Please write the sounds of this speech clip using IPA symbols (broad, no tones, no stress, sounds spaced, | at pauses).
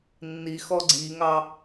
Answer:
nː i x ɔ ɡ͡ǀ i ŋ ɑ